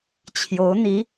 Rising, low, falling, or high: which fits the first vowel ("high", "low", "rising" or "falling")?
rising